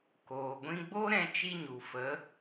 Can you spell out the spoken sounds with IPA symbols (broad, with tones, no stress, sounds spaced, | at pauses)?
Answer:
k oː˨ ɡʷ ĩ˧ ɡ͡b o˦ ɾ ɛ̃˧ t͡ʃ i˧ ɲ u˨ f ə˨˦